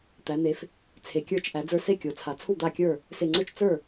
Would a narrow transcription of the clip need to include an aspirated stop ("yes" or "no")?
yes